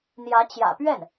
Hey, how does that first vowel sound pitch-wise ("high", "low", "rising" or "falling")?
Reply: rising